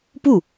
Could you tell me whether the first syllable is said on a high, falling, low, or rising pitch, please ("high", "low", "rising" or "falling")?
falling